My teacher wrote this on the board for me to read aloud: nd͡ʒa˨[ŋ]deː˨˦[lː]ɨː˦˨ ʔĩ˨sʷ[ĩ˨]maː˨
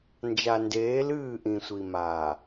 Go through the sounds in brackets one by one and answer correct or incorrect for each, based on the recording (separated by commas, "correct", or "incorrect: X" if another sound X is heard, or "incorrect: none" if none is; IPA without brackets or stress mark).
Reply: incorrect: n, incorrect: l, incorrect: i˨